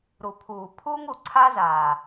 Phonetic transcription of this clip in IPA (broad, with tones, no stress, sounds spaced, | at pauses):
ɾ u˨ pʰ uː˨ pʰ uː˦ ŋ u˨ ǀʰ aː˦ z aː˨